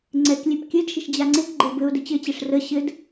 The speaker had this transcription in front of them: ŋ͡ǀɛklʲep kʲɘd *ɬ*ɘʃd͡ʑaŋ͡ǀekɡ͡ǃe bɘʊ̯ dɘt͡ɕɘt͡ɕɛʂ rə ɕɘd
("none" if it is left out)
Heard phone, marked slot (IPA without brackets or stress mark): ʃ